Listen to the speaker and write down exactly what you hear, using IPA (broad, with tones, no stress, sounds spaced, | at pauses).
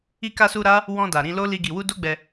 i˧ k a˧ s u˧ ɾ a˦ | w ɔ̃˧ d a˨ ɾ ĩ˧ l o˦ l i˧ ɡ i˨ w u˧ d o˦ ɡ͡b ɛ˧